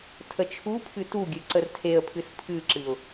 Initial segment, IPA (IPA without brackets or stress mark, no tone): tʰ